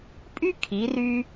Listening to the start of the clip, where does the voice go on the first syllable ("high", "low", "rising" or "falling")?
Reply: high